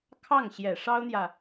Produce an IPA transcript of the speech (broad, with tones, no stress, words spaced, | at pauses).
kʰɑ˥˩ŋɕjɛ˨˩ʂɑ˥ʊ̯n̪jä˨